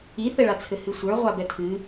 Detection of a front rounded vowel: absent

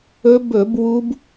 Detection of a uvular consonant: absent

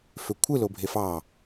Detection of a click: absent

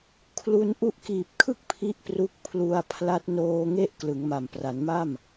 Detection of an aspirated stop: present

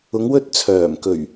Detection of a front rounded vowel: present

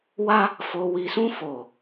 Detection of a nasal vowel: present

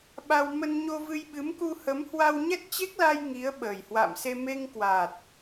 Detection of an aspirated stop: absent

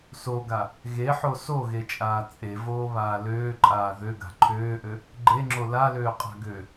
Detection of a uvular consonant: present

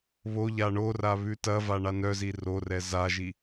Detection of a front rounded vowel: present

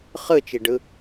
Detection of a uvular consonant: present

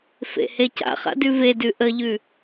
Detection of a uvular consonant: present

